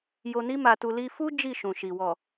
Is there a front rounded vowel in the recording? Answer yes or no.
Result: no